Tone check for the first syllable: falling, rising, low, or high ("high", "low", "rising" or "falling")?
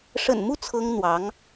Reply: low